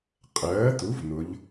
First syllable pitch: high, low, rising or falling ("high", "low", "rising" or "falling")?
rising